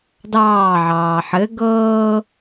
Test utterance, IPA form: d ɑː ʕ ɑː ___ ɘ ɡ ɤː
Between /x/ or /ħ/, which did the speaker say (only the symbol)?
ħ